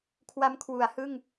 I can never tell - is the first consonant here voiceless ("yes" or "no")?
yes